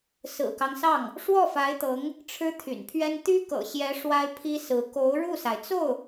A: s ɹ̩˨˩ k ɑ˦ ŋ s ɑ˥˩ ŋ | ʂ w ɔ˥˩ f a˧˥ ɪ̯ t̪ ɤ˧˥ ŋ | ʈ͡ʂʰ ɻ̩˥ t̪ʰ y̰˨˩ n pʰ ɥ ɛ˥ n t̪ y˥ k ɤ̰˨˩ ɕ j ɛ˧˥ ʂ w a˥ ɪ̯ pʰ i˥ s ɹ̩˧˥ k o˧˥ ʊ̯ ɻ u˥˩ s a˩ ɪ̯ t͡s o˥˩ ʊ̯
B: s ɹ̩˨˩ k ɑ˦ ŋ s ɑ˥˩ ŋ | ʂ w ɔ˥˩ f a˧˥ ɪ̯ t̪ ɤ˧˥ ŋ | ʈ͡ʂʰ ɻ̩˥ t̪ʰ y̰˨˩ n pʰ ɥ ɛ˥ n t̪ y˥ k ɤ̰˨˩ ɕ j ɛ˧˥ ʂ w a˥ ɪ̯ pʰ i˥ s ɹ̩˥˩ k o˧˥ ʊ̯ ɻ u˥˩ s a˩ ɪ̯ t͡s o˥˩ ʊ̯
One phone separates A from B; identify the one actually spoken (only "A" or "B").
A